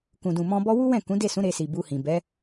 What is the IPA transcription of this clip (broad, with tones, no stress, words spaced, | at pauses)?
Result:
kũ˨dũ˨ mɔ̃˧bɔ˦ wu˦wɛ̃˦˨ kũ˨˦de˦˨sũ˨˦ ɾe˧si˨bu˧hĩ˨ bɛ˨˦